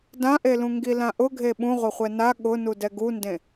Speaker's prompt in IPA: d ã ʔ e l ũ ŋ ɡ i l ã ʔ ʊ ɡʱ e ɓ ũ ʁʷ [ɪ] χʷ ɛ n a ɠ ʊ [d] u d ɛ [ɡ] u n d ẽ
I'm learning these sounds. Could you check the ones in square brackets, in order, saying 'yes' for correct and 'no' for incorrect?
yes, no, yes

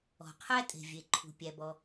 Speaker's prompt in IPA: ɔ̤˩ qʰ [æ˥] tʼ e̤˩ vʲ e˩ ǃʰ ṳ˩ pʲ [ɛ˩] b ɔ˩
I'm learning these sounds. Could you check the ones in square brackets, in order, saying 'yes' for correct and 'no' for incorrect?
yes, no

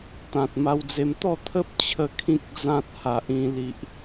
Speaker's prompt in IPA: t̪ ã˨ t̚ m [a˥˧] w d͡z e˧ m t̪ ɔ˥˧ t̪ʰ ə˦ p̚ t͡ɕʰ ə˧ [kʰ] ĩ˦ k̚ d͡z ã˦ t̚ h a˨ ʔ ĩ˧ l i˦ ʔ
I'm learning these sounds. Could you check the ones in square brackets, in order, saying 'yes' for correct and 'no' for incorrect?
no, yes

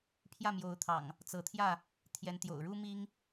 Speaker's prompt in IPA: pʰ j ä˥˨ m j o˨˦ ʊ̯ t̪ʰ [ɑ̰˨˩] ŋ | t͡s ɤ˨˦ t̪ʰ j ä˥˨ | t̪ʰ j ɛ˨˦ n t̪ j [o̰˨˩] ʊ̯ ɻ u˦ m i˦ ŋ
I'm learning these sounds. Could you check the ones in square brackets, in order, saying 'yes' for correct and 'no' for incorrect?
yes, yes

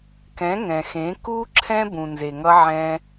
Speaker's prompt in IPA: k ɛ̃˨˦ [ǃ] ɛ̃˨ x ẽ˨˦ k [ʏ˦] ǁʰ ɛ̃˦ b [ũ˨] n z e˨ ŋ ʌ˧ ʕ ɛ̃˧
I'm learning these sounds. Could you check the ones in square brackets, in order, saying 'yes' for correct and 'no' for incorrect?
no, no, yes

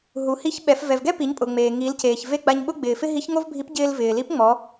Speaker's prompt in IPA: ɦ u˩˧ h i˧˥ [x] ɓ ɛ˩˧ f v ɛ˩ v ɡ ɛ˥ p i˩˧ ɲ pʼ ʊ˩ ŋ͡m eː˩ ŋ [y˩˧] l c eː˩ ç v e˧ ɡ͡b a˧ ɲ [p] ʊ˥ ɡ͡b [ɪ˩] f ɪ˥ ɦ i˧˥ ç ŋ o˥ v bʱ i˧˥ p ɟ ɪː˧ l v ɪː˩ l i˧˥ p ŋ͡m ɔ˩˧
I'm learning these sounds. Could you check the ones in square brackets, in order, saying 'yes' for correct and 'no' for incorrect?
no, no, no, no

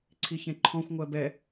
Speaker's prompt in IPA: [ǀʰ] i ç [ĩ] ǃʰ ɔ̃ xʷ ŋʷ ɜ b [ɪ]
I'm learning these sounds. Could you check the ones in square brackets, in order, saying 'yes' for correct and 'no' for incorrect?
yes, no, no

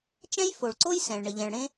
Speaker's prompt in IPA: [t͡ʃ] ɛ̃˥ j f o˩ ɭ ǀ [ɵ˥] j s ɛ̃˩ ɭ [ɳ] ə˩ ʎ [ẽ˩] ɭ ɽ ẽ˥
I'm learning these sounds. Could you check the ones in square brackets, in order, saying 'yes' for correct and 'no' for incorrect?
yes, no, yes, no

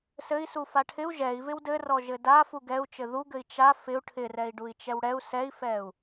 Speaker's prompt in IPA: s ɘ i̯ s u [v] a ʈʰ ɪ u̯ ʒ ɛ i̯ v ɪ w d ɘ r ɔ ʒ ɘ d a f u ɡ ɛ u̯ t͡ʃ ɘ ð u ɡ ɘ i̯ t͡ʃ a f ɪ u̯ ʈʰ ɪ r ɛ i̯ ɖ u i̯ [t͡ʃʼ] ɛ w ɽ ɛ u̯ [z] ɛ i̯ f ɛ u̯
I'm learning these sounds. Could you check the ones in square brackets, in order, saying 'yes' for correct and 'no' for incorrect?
no, no, no

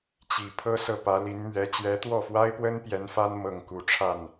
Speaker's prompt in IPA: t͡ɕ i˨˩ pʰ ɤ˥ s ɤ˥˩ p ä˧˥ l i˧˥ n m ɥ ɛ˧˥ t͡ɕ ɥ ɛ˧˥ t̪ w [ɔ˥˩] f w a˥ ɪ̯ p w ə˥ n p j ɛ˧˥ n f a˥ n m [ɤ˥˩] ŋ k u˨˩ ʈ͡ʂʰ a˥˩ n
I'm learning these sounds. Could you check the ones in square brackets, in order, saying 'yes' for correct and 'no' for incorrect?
yes, yes

